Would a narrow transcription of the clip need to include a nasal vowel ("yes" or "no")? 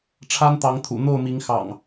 no